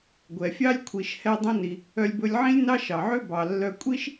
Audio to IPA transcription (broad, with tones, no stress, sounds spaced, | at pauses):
ɡʷ ɛ˩ fʲ ɑ˥ lʲ kʷʰ i˩ ʃ h ɛ˧ dˤ ũ˧ n i˩ | œ˧ lʲ b ɵ˧ lʲ ʕ ĩ˥ lʲ n ɑ˥ ʃ ɑ˩ ʕ ø˥ b ɑ˩ lː œ˧ kʷʼ i˥ ʃ